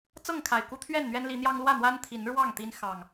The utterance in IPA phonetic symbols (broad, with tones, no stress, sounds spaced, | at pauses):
t͡s ɤ˥˨ ŋ kʰ a˨˩ ɪ̯ k u˦ t̪ʰ ɥ ɛ˥˨ n n̪ ɥ ɛ˦ n l i˨˦ n̪ j ɑ˦ ŋ l w ä˥˨ n̪ w a˦ n t̪ʰ i˨˦ n ɻ w ɑ˥˨ ŋ t̪ i˦ n x ɑ˨˩ ŋ